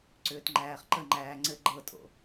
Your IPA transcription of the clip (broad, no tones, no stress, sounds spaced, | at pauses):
ǀ ʏː t ŋ͡ǃ æː χ ǃ ə ŋ͡ǃ æː ŋ͡ǀ ɘ ɡ͡ǃ ɤ tʼ o̰